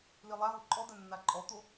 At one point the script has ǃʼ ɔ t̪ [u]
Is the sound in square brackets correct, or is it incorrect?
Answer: incorrect